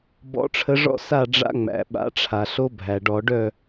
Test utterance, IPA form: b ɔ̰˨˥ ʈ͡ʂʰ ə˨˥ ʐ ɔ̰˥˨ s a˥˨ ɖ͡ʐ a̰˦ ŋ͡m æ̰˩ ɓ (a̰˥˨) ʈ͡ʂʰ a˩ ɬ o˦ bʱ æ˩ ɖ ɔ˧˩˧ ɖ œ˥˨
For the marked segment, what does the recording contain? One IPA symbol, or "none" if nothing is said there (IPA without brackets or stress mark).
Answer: a̰˨˥